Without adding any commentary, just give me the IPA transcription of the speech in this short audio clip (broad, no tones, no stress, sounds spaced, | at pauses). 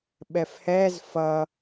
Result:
ɓ ɛ f h ɛ z f ʌ